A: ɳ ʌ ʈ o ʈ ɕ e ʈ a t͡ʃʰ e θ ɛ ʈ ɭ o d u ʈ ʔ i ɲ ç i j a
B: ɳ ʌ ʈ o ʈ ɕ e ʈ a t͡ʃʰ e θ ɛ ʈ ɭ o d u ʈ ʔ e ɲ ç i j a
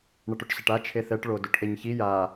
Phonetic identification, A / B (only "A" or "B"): B